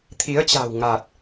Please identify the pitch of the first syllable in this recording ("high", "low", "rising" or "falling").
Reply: rising